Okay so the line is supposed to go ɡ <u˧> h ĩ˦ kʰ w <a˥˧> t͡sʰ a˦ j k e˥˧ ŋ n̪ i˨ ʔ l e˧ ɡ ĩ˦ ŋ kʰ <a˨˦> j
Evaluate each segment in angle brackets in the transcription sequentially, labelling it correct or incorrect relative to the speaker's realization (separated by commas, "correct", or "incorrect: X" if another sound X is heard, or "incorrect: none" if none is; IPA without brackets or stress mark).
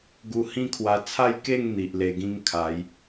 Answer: correct, incorrect: a˧, correct